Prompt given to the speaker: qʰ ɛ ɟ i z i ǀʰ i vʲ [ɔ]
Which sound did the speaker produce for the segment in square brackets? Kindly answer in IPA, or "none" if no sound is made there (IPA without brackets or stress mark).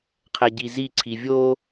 o